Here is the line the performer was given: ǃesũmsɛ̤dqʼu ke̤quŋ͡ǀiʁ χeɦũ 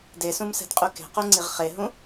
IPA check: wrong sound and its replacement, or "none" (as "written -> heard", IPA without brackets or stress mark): ǃ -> d